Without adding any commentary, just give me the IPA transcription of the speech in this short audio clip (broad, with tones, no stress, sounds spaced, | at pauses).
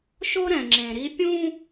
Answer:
ʃ o˦ ɾ ɛ̃˨ ŋ͡ǁ ẽ˨ ɾ i˦ pʲ ũ˦